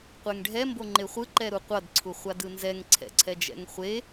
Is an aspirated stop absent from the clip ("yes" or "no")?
no